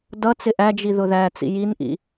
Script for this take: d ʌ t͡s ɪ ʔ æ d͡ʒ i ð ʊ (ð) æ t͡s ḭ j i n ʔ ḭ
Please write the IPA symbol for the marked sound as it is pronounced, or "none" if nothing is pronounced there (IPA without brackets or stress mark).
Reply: ð